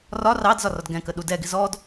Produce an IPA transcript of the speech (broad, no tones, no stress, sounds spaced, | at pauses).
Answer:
r ɒ r ɑ d z ɒ r ɒ d ɡ ɛ̃ k ə ɗ u d ɛ ɡ ɪ z ɔ d